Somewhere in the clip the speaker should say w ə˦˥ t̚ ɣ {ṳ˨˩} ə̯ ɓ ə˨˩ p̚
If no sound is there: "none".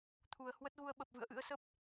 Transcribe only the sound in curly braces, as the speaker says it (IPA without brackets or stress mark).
u˧